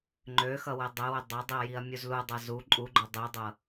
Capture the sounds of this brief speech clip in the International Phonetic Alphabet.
ŋ͡ǃøxʌ wɛdˤɛwø dˤʌdˤiɐ̯ jiɐ̯mʲuzludˤʌ zu ǃʼuɡ͡ǃø dˤidˤɤ

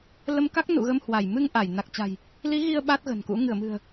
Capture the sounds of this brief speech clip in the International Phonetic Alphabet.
lə˧m ka˦˥k̚ nṵ˧˨ɣə˧mhwa˧˩j mɨ˧ŋ ʔa˧˩j na˨˩k̚t͡ɕa̤˨˩j | li˨˦ ɣi˧ə̯ ɓa˦˥t̚ɣə̤˨˩nkṵ˧˥ ŋɨ˧˩ə̯mɨ̤˨˩ə̯

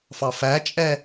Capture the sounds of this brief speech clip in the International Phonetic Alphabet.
fɑfæt͡ʃʼɛ

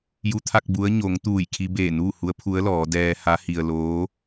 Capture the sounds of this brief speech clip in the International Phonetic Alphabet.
ju˧t̪ʰa˥˨k̚ bu˧˥ə̯ ɲo˩˧ŋ t̪uː˧˩jkʰi˧beː˧˩ nuː˥˨hu˧˥ə̯pʰu˧˥ə̯lɔː˩˧ dɛː˧ha˧˥hi˧ə̯ loː˧˥

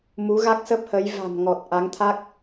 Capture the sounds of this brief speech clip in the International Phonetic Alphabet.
mu˨˦ ɣa˦˥k̚sə˦˥p̚hə˨˦j va̤˨˩mŋɔ˨˩t̚ ʔa˨˦ŋt̪ʰa˦˥k̚

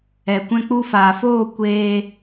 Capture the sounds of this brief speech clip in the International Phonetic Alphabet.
ɛ˨ kʷɛ̃˧k͡pu˧faː˨foː˦˨ kʷeː˧

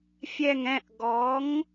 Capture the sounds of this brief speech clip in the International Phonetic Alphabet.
fʲɛ˦˨ŋɛ̃˦˨ʔ ɡɔ˨˥ŋ

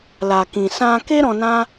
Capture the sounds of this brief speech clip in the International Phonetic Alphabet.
la˨kĩ˨ sã˧ke˦ ɾɔ̃˧nã˦

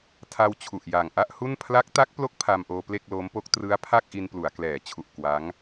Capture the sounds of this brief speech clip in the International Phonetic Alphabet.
tʰa˧w t͡ɕʰu˨˩ʔja˨˩ŋ ʔa˥˩ʔhu˥˩n pʰla˦˥k̚ta˦˥k̚plo˦˥k̚ pʰa˧mʔoː˧ ple˥˩k̚lo˦˥mpo˦˥k̚ trɯ˦˥a̯pʰa˥˩k̚ʔi˧n plu˩˦a̯klɛː˩˦t͡ɕʰu˨˩ʔ kwa˦˥ŋ

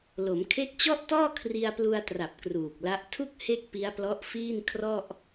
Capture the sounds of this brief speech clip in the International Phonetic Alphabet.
lo˩˦mkʰe˦˥k̚t͡ɕɔ˥˩ʔtɔː˥˩ kʰri˧a̯plu˧a̯tra˨˩p̚ kruː˨˩k̚la˦˥ʔ tʰu˥˩k̚ he˥˩k̚pi˦˥a̯ plɔ˦˥ʔfiː˥˩n kʰrɔ˥˩ʔ

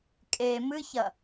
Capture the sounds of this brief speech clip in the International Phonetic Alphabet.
kʼe mɨçɐ

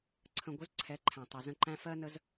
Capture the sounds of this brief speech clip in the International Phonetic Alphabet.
ǀʰə̃˨ɡʷə˨˦z ǀʰɛ˨˦ǃʰæ̃˨ tˤʌ˨zə̃˧ǃæ̃˦ fɜ˦nə˦z

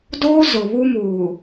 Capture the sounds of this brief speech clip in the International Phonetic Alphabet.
doː˦ zʊ˨ βu˦muː˨

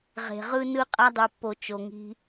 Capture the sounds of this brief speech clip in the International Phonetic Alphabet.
ʁe̤˨ ʁɯ˧nɯ˧ qʼa˧dˤu˨pːo˨ t͡ʃo˨ŋi̤˧

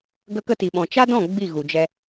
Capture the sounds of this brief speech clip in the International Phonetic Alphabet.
ɡə˧kə˧ti˨ɓɔ̃˨ t͡ʃa˦dɔ̃˦˨ ɡ͡bi˦˨ɣu˨d͡ʒɛ˧

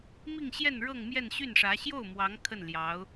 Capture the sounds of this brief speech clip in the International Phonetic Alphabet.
mi˥˧ŋɕjɛ˥˧n ɻɤ˥˧ŋmjɛ˥˧nɕy˥˩nʂä˧˥ ɕjo˥˩ʊ̯ mwɑ˧˥ŋ kʰə˥˩nljɑ˧˥ʊ̯

